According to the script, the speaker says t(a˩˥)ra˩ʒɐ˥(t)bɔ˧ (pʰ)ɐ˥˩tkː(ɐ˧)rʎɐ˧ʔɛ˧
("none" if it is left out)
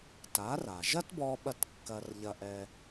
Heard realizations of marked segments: a˩˥, t, ɓ, ɐ˧

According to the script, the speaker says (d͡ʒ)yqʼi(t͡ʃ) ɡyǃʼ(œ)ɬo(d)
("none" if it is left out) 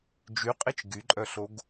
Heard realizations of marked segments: d͡ʒ, t͡ʃ, œ, ɡ

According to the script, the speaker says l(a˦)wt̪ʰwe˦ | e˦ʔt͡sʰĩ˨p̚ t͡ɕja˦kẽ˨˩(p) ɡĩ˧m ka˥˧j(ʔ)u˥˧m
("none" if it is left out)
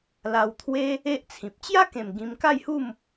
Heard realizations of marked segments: a˧, m, h

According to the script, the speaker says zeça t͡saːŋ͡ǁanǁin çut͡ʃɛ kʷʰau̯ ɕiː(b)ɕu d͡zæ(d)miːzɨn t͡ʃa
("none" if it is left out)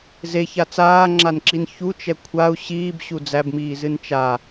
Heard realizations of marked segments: b, b

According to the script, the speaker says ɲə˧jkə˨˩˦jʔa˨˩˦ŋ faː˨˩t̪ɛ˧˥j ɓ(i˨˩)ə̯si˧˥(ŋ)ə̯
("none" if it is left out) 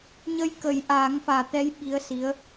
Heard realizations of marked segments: i˧˥, none

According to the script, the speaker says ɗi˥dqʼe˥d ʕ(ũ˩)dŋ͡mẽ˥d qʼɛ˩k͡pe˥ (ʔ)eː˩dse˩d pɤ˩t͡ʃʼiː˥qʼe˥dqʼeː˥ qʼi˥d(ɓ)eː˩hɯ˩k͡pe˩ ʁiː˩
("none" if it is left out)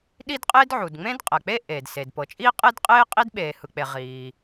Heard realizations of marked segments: u˩, ʔ, ɓ

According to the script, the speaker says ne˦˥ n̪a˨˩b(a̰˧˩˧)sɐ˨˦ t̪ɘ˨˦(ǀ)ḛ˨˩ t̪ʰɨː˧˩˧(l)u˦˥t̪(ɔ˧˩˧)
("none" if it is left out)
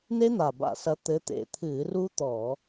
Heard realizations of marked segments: a̰˧˩˧, t̪, r, ɔː˧˩˧

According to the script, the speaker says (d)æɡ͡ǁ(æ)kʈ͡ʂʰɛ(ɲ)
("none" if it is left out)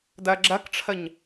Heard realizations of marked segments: d, æ, ɲ

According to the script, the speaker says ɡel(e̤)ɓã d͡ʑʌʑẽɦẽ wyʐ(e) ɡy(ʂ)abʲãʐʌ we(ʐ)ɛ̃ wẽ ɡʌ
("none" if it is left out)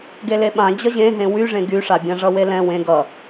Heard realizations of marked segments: e, ẽ, ʂ, l

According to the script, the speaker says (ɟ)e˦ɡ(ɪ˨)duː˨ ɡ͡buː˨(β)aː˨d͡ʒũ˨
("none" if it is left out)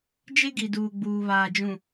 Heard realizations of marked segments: d͡ʒ, i˨, β

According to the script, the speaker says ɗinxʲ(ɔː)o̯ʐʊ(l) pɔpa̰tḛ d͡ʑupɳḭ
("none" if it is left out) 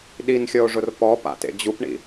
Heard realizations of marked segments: ɔ, r

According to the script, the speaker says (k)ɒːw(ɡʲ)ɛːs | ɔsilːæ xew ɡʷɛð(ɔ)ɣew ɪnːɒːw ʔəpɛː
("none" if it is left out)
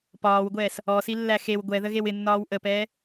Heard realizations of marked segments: p, ɡʷ, ə

